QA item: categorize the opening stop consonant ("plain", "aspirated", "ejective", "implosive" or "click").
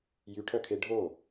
aspirated